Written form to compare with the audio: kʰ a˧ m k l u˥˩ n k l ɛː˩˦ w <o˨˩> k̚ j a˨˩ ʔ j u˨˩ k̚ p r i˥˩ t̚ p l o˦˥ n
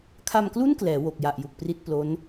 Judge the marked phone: correct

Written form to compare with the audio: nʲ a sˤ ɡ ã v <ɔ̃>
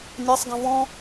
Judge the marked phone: correct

